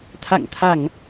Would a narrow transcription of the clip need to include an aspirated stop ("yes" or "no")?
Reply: yes